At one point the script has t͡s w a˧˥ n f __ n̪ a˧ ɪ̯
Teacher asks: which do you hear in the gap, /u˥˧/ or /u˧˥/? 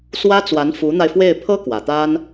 u˧˥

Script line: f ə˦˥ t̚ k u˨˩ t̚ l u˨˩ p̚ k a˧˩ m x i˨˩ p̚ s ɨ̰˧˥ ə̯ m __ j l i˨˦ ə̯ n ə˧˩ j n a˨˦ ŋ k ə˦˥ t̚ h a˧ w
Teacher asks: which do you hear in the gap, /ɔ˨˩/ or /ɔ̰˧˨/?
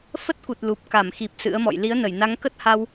ɔ̰˧˨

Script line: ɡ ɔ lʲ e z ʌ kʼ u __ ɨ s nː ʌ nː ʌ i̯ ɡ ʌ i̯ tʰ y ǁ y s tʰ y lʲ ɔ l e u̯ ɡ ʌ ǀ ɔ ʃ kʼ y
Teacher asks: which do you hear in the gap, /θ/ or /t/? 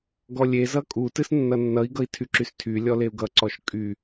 t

